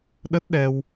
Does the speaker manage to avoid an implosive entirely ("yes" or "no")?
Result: no